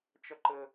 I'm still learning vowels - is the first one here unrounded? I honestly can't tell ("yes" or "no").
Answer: yes